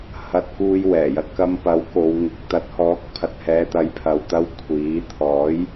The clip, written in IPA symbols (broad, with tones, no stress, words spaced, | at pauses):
hɐ˥t̚kuː˥j wɛː˨˩jɐ˧t̚kɐ˧mpɐ˨˥w ko˨˧wŋɪ˨˥k̚ t̪ɐ˨˥t̚hɔː˨˥k̚pʰɐ˨t̚ hɛː˨˧t̪ɐ˨˧jpʰɐ˨wt̪ɐ˧w kʷʰiː˨˥ t̪ʰɔː˨˥j